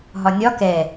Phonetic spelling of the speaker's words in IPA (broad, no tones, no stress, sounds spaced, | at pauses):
ɦ ɒ nʲ ɒ k ɛ